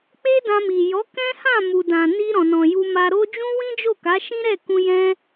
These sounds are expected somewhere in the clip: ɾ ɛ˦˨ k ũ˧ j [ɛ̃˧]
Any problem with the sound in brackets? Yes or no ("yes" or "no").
no